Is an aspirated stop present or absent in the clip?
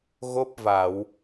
absent